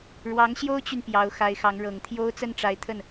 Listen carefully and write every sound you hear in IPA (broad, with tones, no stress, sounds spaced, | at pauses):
ɻ w ɑ˧˥ ŋ ɕ j o˥ ʊ̯ t͡ɕ y˨ n p j ɑ˧˥ ʊ̯ x a˧˥ ɪ̯ x ɑ˧˥ ŋ ɻ ɤ˨˩ ŋ t̪ʰ j o˥ ʊ̯ t͡s ə˥˩ n ʈ͡ʂ a˧˥ ɪ̯ t̪ʰ ə˥˩ n